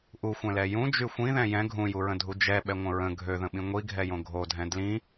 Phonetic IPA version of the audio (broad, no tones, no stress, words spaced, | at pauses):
ʔuxʷɛ̃lɛ jũ d͡ʒyxʷĩðɛ̃ jɛ̃ ɡʱũjuɹə̃dʱu d͡ʒɛ ɓɛŋʷə̃ɹə̃ ɡʱøðə̃ɓĩ ŋʷiɡʱɛjõ ɡʱodʱɛ̃ dlĩ